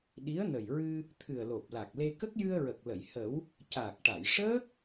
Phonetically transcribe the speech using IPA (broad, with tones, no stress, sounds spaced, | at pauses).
ɗ i˧˥ ə̯ n ə˨˩ j ɹ ɨ˧ | t̪ʰ ɨ˨˩ ə̯ l o˨˩ p̚ l a˨˩ k̚ l e˧ k ə˦˥ k̚ j ɨ˧ ə̯ ɹ ə˨˩ k̚ l ə˨˩˨ j h ə˨˩˦ w | c aː˨˩ k̚ ʈ a˨˩˨ j ʂ əː˦˥ k̚